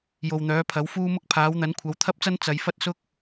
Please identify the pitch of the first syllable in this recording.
low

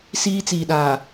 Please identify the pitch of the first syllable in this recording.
high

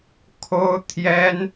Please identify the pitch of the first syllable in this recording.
high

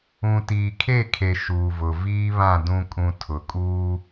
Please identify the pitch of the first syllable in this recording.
low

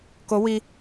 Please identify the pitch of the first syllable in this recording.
rising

